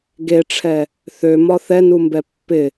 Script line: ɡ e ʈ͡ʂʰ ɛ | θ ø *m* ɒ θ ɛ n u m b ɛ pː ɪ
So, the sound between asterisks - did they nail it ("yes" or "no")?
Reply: yes